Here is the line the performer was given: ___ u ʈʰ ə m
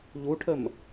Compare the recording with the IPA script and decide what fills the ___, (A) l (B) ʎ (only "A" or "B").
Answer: B